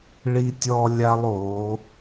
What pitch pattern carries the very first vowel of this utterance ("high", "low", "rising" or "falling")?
high